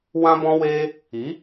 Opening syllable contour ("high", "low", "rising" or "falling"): high